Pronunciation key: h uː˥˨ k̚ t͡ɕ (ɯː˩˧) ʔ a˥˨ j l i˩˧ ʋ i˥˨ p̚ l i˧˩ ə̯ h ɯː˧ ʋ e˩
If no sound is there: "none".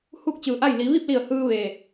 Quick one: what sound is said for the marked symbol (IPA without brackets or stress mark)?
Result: ɯː˧˩